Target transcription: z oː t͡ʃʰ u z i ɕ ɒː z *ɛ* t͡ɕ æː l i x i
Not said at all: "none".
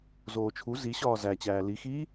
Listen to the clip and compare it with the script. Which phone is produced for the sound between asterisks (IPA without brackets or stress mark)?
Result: æ